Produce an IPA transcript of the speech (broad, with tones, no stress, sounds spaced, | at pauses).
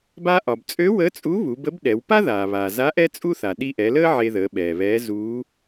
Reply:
b a˧ ʔ ɒ˩ b t͡sʼ ø˧˥ w əː˧˥ t͡sʼ u˧˥ β u˩˧ b ə˧˥ b ɗ ɛ˩˧ w p a˥ ð aː˩ β aː˩ z a˧˥ ʔ ɛ˥ t͡sʼ u˥ θ a˩ ɗ i˧ ʔ ɛ˩˧ l əː˥ ʕ e˧ ð əː˩˧ ɓ ɛː˩ β ɛː˧˥ z uː˧˥